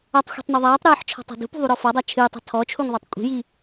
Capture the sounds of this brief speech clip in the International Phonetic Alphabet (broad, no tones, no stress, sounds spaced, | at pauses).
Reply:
a tˤ xʷ i̤ tˤ n ɔ ðˤ aː tˤ ɾ ɨː ħ t͡ʃʰ ɔ̤ tˤ a̤ d ṳ p ṳ ðˤ u ɾ ɔ f ɔ dˤ a t͡ʃʰ ɨː tˤ a̤ tʰ ɔ t͡ʃʰ u ŋ ðˤ a tˤ kʷʼ i̤ j i